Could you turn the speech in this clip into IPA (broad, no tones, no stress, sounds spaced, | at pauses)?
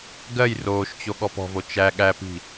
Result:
ɡ ɜ j r oː ʃ t͡ɕ o ɠ ɔ p ɔ̤ v o t͡ʃ æ ɠ æ p i̤